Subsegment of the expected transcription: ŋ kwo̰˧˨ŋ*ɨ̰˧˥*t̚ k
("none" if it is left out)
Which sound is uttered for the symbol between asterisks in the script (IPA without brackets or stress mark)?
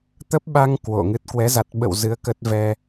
ɨ˦˥